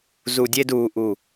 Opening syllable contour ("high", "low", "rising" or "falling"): low